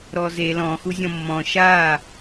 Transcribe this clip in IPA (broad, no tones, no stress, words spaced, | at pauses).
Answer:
ɾɔze lɔ̃ xuzʲɔ̃mːɔ̃ ʃa